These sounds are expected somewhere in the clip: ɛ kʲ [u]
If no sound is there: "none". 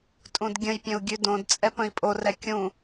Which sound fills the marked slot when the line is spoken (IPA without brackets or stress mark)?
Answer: ũ